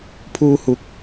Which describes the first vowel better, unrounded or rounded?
rounded